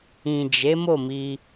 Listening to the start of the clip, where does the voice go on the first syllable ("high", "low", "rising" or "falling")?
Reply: low